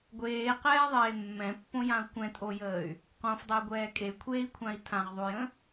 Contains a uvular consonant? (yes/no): yes